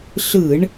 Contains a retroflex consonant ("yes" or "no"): yes